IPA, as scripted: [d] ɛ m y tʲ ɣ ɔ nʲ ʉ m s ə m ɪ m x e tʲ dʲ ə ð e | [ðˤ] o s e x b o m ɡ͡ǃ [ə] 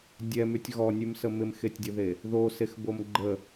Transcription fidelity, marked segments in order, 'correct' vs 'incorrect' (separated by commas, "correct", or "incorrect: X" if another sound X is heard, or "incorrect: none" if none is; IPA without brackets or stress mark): incorrect: dʲ, incorrect: ð, correct